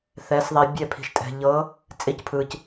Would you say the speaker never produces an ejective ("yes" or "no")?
no